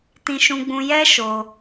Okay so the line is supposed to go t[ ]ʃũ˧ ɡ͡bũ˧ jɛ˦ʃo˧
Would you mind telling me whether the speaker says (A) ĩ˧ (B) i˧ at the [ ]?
A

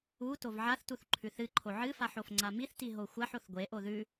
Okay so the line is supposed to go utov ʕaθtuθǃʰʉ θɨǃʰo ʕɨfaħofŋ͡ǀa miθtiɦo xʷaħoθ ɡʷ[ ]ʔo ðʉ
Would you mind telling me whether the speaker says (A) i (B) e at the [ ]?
B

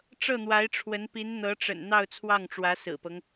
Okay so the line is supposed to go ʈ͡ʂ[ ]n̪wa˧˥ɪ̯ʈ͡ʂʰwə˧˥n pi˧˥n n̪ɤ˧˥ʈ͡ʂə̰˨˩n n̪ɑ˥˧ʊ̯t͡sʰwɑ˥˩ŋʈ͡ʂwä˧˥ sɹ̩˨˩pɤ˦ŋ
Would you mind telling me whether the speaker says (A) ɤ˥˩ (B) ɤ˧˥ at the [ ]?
A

